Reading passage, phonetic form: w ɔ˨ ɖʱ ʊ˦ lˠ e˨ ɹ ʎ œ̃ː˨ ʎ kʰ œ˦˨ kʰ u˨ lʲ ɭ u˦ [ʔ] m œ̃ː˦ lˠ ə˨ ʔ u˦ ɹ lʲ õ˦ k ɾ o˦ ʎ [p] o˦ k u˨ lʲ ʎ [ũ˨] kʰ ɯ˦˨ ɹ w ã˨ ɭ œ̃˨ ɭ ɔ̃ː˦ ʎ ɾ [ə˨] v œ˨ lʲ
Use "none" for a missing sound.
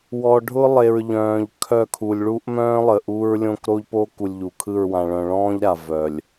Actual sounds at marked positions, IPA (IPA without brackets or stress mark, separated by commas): ʔ, p, u˨, a˨